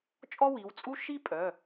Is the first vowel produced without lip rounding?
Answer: no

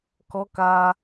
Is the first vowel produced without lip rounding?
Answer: no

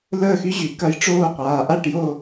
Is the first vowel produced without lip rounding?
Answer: yes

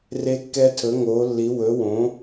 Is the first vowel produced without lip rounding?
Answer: yes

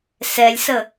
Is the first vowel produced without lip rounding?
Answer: yes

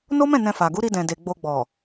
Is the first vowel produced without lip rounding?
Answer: no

